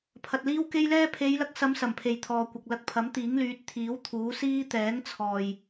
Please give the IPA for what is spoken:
pʰɐ˨t̚liː˥wke˥jlɛː˥ pʰe˨˧jlɐ˧k̚sɐ˨˧m sɐ˨˩mpʰe˨jt̪ʰɔː˨kʷɐ˨k̚ lɐ˧k̚pʰɐ˨˥mt̪iː˨˥ŋ lyː˨˥t̚t̪ʰiː˨˥w t̪ʰuː˨˥siː˥ t̪ɛː˨˥ŋt͡sʰɔː˨j

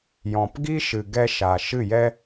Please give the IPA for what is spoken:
jɔ̃˨p ɡi˦ʃɨ˨ɡɛ˧ ʃa˨ ʃɨ˦˨jɛ˦

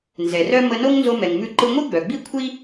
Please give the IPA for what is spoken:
nzɛ˩rœ˥ mə˧no˥ŋ nzo˧mɛ˩ŋmʉ˧ ǃɯ˧ŋʷi˥ɡ͡bœ˩ɡ͡bi˥ kʷʰi˥

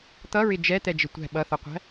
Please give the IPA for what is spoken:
t̪ʌɹɪ d͡ʒɛt̪ɛd͡ʒɪ tʷæ̤ ɓʌθʌqʷæ̤

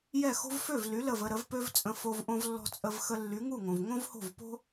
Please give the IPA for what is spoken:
jɛ˥˩xo̤˥v fø˥˩vly˩˥ lə˥˩və˧ɾə˩˥vpø˥v t͡sʼə̃˧fo˧v ʔõ˧vlːɔ̤˧ t͡sʼə˧v xə˧lːy˩˥ŋu˥˩ŋõ˩v ŋõ˥vho̤˥˩vpo̤˥

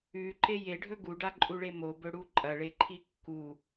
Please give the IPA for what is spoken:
ʉǃe jeɖʱɵ ɡuɖaǃʼuɭe mobɵɽu ǃʼɐɭeǃʰi kːu

